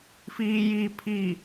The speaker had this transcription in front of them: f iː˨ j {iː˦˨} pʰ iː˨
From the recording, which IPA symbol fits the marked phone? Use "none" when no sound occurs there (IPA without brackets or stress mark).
iː˨